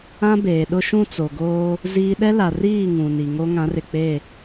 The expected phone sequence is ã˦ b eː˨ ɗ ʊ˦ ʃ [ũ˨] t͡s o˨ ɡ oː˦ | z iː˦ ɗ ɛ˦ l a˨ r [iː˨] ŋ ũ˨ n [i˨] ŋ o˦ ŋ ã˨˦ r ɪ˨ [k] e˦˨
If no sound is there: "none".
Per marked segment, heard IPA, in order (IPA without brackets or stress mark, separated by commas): ũ˦, iː˦˨, i˨, k͡p